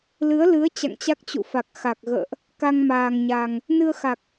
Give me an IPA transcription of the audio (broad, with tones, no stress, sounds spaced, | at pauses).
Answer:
l ɨ˨˦ ə̯ l ɨ˨˦ ə̯ t͡ɕ a̰˧˨ ŋ t͡ɕ a˦˥ k̚ t͡ɕ ṵ˧˨ f a˨˩ k̚ x a˨˩ k̚ ɣ ə̰ː˧˨ ʔ | k a˧ ŋ m aː˨˩ ŋ ɲ a˨˩ ŋ | n ɨ˧ ə̯ x a˨˩ k̚